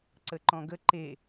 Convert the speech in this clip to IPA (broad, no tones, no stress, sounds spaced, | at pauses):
ǀ ə ǃ ɔ̃ ɡ ə ǃ e